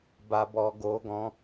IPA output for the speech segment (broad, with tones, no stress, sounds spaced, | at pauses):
b a˧ b ɔ˧ ɡ o˧ ɡ ɔ̃˧